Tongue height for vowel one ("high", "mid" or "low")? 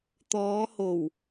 mid